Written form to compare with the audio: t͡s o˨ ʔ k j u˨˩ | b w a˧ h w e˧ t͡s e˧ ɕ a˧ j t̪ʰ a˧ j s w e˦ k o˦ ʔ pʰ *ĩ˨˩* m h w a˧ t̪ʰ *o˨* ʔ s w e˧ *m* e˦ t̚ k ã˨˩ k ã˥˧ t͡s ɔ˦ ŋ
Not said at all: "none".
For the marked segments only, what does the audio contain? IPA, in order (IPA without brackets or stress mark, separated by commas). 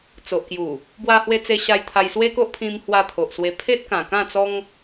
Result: ĩ˧, o˨, pʰ